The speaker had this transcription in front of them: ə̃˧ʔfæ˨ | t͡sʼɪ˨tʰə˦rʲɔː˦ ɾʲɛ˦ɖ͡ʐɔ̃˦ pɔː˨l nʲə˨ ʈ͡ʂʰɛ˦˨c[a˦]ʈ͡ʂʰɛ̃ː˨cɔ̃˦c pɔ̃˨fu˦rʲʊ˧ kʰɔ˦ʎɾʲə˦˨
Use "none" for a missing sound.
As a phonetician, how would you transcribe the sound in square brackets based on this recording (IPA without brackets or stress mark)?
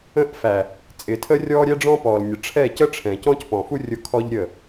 ə˦